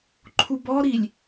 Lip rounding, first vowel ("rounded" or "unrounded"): rounded